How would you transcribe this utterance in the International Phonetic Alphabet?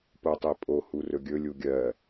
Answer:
p o tˤ e pʼ o h u r ɵ ɡʲ ɵ lʲ u ɡʲ ɜ

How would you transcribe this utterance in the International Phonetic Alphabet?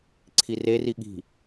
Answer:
ǀʰ i r e r i ɠ i̤

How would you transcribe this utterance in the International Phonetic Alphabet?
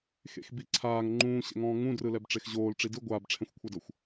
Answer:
x ḛ x b i ǀʰ aː ŋ ŋ͡ǃ ũː ɕ ɛ̰ ŋ ɔ̃ː ŋ ũ d r ɯ l ɛ b ʈ͡ʂ e x ʑ oː l ʈ͡ʂ i d ɯ ɡʷ aː b ʈ͡ʂʰ ɛ̃ xʷ kʷʰ a d ɤ xʷ

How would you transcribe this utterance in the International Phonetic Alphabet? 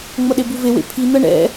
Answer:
ŋ͡m ʌ ɗ e b u v e w ḛ pʰ i n̪ ʌ ɳ ɛ̰

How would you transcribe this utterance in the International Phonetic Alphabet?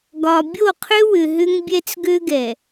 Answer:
ɡ ɒ˨ bʲ o˦˨ qʰ ø˦ w ʏ˨ ɦ ʏ˦ ŋ bʲ ɛ˦ t͡s ɡ ø˦ ɡ ɛ˨

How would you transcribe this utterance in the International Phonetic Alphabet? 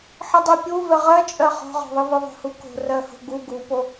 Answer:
ħ ɨ dˤ i pʲ u v ɛ ʁ ɜ t͡ʃʼ ɜ χ ɔ̤ ʁ ɔ̤ ðˤ ɨ v ɨ ðˤ o̤ h u k o̤ r ɜ h o̤ ɡ u ɡ u p o

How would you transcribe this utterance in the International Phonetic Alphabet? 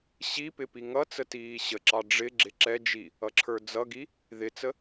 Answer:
ɕ i p ɪ p i ŋ ʌ t͡s ə t iː ɕ ə ǁ ɑ ɖ͡ʐ ɪ ɡ͡ǁ ɪ ǁ ɛ d͡ʒ i | ʌ ǁʰ ə˞ d͡z ʌ ɡ i | ð ɪ t͡s ə

